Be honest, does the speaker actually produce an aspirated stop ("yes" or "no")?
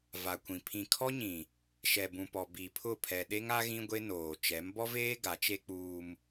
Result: yes